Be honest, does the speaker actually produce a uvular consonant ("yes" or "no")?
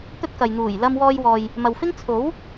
no